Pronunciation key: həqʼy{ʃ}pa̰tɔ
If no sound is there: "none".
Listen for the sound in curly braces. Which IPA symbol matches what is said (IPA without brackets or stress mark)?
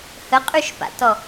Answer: ʃ